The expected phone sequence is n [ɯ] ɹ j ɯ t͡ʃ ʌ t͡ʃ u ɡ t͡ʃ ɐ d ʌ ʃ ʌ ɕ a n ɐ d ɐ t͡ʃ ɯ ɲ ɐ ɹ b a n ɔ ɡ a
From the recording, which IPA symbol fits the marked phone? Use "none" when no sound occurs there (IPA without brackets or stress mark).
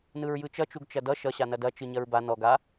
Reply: ɯ